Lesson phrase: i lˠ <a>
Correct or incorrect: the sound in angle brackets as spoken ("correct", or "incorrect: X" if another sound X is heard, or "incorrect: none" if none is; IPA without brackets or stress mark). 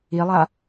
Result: correct